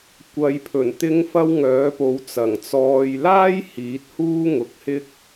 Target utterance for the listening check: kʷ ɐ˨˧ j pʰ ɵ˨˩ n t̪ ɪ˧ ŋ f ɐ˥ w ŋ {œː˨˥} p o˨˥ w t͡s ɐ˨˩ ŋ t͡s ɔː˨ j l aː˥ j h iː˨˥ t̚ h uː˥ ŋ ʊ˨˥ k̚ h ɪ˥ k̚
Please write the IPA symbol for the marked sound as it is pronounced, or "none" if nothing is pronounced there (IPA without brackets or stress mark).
œː˨˥